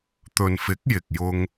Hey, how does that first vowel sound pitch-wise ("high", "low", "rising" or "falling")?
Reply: low